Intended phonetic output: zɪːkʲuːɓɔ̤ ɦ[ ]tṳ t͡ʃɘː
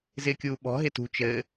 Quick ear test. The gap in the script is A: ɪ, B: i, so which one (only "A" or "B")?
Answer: A